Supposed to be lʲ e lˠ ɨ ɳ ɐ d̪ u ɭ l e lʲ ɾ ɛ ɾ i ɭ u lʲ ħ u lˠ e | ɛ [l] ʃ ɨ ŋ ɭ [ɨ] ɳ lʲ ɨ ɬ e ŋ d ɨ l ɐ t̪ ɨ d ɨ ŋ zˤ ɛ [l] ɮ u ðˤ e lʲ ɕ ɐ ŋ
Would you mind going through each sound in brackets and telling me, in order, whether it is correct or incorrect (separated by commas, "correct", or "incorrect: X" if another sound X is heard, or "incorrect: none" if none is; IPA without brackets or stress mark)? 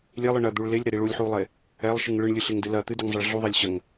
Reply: incorrect: lˠ, correct, incorrect: ɭ